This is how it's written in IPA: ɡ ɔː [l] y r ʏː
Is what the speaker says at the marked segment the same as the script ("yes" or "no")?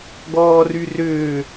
no